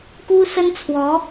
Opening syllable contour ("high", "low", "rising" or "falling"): high